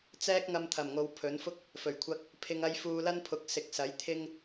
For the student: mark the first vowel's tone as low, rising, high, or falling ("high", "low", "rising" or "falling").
high